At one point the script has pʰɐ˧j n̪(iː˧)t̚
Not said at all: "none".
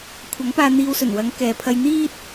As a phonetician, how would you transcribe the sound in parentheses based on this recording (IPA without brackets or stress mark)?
iː˥